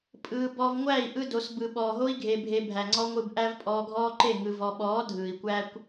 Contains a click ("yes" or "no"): yes